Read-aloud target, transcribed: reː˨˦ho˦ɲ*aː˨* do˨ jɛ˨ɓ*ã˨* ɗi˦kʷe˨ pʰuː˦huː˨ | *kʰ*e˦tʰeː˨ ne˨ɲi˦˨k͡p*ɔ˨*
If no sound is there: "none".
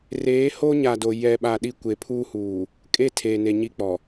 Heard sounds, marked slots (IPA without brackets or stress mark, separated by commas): a˨, a˨, kʼ, ɔ˨